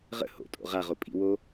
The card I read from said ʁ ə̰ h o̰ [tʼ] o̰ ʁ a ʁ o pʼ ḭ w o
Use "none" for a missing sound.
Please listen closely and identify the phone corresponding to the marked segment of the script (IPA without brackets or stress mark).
tʼ